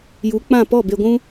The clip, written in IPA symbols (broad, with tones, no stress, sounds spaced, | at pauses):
j u˨˦ k͡p ã˦˨ p ɔ˦˨ b e˧ ɡʷ ũ˧